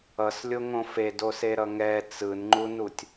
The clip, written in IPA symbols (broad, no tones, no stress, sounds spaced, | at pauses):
ʌ s lʲ o ŋ õ f e d o s e ɾ ʌ ŋ ɛ t͡s ɯ n ŋ͡ǃ u n u tʲ